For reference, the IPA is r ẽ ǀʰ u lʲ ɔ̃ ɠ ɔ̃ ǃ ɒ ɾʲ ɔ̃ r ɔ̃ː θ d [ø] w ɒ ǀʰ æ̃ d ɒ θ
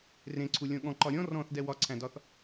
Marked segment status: incorrect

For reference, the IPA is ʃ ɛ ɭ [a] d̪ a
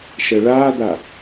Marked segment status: incorrect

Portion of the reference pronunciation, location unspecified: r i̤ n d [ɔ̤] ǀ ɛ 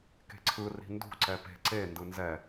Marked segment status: incorrect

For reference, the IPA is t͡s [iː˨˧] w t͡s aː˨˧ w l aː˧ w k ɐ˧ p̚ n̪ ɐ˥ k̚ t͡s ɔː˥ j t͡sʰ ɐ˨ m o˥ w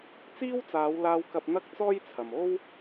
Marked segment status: incorrect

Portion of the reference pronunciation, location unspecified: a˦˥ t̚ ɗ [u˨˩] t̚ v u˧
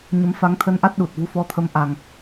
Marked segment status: correct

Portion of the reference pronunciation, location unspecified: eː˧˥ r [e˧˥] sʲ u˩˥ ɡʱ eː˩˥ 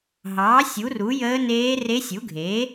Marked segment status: correct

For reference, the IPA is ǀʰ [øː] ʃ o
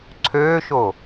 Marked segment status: correct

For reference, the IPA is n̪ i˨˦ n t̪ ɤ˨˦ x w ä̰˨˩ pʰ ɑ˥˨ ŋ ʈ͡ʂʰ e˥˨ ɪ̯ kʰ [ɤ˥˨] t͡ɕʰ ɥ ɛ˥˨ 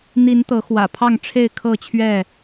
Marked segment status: correct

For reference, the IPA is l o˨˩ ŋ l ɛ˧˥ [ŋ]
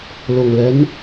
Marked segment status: incorrect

